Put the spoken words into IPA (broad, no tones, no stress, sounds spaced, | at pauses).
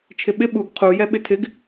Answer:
t͡ʃʰ ɪ ɓ ɪ ɓ u ɡ qʰ u j ɛ ɓ ɪ tʰ ɪ ɡ